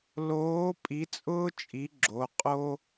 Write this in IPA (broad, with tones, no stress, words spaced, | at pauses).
loː˨˥ pʼi˨˥t͡sʼʊː˥t͡ʃʼi˨˥ ɡ͡ǁo˩˧˩qʼo˥